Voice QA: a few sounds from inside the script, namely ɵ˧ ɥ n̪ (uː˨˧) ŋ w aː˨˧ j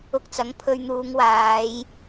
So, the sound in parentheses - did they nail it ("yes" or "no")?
yes